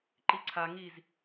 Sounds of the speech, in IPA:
ǃ i ǀʰ a ŋ i z

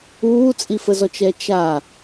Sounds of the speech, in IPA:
uː t͡sʼ i f ə z ɔ t͡ʃ ɛ t͡ʃ a

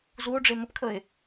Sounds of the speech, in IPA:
z u o̯ ɖ͡ʐ e m ə p kʰ ə e̯

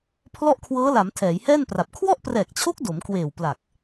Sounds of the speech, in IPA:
pʰ l ɔ˥˩ ʔ kʰ w ɤː˦˥ l a˩˦ m tʰ ɛː˩˦ j h ɛː˥˩ n p r a˨˩ p̚ kʰ w ɔ˥˩ ʔ p r ɛː˨˩ k̚ t͡ɕʰ o˦˥ k̚ d o˩˦ m k w eː˨˩ w p l a˨˩ k̚

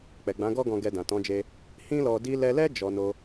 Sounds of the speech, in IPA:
k͡p ɛ˨ ɡ͡b ã˨˦ ɡ ɔ˦ ɡ ɔ̃˧ ɡ ɛ˧ d ã˨ t ɔ̃˨˦ d͡ʒ e˧ | h ĩ˦ l ɔ˧ d i˧ l ɛ˧ l ɛ˦ d͡ʒ ɔ˧ n o˧

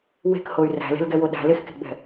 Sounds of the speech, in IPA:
w e̤ k h o y̯ r æ̤ l e̤ l ɡ ɛ w o ɗ æ̤ l e x k e̤ ɡ͡b ɛ̤

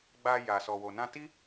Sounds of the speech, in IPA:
ɡ͡b a˧ j a˨ s ɔ˨ w o˨ n ã˧ t i˦

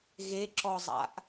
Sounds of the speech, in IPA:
ɣ e ǁ ɔ zˤ a̰ ʔ

